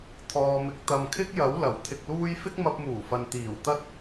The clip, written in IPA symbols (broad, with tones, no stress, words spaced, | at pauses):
t̪ʰɔː˨mɪ˨˥k̚ t̪ɐ˨mkʰɪ˥k̚jɐ˨˥w lɐ˨˩wt̪ʰɪ˧k̚luː˥j fɪ˥k̚mɐ˧p̚muː˨˩fɐ˨n t̪iː˨˩wt̪ɐ˥t̚